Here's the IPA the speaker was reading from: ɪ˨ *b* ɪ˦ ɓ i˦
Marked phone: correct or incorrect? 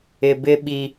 correct